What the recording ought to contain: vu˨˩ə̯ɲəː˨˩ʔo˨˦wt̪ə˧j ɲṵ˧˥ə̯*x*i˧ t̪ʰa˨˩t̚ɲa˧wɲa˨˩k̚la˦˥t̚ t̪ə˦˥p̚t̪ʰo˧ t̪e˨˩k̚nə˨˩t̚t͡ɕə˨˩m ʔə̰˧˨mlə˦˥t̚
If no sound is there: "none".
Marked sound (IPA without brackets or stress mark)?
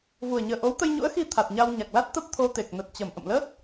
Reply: x